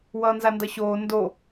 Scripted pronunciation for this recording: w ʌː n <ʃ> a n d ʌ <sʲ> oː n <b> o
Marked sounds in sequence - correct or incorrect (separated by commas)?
incorrect, incorrect, incorrect